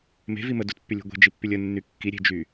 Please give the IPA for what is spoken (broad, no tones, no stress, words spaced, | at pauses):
me̤vi mədutpːylʲṳ ɡʷe̤d͡ʒipːylʲ ənːy kːiɾʲe̤d͡ʒy